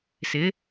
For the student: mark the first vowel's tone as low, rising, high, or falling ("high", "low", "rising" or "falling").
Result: rising